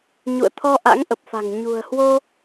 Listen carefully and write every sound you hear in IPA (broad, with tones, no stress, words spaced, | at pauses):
ɲṵ˧˨ə̯t̪ʰɔ˧ ʔa̰˧˥ŋʔə˨˩p̚fa̤˨˩ŋ ɲṳ˨˩ə̯ hwo˧